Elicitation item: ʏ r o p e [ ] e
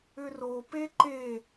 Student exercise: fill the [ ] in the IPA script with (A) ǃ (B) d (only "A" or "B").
A